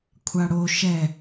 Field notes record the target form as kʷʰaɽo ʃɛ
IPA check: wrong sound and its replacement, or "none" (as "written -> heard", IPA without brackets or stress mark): none